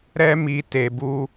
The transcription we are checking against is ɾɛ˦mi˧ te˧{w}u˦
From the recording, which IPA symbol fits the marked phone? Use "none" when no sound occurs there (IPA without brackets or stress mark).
b